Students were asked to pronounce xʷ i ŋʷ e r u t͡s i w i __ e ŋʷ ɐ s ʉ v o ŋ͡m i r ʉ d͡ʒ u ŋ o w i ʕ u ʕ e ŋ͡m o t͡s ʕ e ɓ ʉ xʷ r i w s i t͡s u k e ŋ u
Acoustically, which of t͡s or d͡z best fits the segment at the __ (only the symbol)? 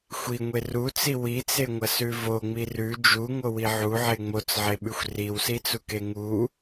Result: t͡s